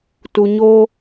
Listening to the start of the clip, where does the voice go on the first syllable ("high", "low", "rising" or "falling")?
low